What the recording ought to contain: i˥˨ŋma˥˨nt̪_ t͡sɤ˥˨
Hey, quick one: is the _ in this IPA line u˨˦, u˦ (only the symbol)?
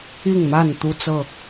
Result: u˦